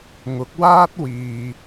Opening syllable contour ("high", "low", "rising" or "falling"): rising